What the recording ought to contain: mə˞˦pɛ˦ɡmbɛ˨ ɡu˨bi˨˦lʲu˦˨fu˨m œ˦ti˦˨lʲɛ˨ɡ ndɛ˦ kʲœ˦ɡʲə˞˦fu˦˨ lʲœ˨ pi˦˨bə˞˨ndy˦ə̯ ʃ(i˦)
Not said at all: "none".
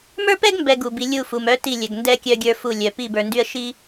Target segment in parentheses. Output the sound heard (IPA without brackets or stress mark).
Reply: i˦